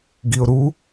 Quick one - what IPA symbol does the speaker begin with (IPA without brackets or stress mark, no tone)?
ɡ